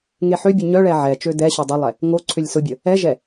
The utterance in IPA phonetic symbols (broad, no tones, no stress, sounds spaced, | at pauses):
ŋ e ħ ø bʲ ʊ ɲ œ ɭ ɛ ʕ ɛ t͡ʃ ø d ɛ ɕ o dˤ ʊ lˠ ɛ | ŋ o ǀʰ ø lʲ s ʊ bʲ ə | ɛ ʒ ɛ